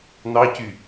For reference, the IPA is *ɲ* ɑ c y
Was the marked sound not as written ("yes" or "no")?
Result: yes